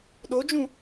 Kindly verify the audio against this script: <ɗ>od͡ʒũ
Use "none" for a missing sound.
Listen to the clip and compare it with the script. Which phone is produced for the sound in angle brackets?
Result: ɗ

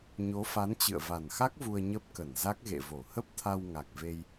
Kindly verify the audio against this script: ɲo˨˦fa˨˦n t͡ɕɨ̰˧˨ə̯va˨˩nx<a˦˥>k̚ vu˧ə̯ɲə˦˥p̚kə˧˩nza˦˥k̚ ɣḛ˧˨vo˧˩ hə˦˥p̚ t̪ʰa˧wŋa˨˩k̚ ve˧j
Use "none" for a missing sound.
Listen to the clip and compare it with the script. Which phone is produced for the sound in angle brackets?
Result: a˦˥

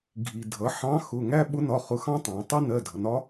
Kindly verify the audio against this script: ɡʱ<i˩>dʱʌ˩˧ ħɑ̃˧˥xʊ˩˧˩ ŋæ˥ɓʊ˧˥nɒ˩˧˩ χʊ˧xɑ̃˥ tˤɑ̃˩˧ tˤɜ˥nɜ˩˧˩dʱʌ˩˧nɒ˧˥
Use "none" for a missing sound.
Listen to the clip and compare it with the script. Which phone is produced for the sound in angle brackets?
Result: i˩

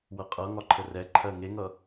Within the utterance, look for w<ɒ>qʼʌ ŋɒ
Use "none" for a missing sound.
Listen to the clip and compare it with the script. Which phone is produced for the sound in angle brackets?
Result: ʌ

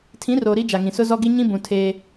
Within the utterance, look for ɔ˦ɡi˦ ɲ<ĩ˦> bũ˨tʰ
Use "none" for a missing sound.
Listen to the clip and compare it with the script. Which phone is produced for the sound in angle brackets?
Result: ĩ˦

